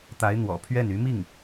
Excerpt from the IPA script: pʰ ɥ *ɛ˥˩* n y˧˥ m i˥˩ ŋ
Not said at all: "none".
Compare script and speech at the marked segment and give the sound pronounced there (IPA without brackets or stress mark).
ɛ˥˩